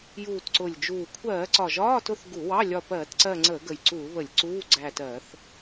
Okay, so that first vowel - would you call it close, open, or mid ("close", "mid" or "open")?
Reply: close